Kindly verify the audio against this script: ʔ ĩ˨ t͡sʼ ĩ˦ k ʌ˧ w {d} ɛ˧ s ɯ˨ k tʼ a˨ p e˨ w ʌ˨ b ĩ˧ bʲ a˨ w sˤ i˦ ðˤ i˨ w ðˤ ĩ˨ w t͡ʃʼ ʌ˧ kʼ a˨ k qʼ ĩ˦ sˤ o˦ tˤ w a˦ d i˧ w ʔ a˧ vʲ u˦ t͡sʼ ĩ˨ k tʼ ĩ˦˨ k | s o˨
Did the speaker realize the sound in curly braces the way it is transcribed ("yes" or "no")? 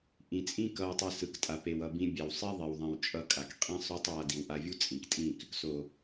no